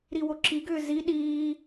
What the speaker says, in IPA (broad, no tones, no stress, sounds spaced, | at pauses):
ɾ i w o ǁ i ɡ ʏː z i ɗ iː